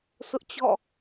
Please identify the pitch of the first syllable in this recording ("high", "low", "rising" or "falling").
high